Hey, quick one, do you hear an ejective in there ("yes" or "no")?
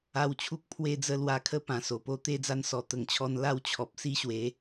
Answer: no